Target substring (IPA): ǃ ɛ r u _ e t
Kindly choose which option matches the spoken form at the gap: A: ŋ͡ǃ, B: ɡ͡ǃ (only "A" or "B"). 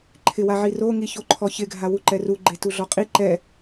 B